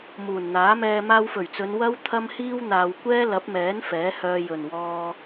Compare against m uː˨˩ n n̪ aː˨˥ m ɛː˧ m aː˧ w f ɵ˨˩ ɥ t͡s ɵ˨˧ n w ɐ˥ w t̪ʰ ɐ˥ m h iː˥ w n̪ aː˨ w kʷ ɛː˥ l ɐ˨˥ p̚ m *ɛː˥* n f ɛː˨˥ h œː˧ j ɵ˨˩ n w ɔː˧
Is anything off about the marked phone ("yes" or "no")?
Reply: yes